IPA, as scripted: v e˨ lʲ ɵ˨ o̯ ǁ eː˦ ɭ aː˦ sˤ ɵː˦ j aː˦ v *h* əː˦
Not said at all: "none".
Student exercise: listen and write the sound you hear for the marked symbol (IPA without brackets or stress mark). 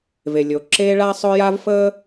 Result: f